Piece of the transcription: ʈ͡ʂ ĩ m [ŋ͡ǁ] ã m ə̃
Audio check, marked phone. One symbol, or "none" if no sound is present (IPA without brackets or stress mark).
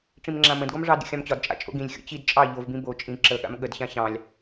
ŋ͡ǁ